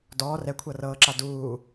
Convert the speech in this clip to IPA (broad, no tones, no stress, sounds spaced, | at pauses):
d ɔː r ɛ kʷʰ ɤ r ɤː ǁ a d uː